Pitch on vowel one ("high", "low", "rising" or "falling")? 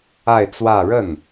falling